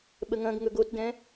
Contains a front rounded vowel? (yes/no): no